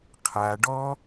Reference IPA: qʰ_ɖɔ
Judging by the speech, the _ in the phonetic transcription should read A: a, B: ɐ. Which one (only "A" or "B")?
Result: A